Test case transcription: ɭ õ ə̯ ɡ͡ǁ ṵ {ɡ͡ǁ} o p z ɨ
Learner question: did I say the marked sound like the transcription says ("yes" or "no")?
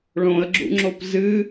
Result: no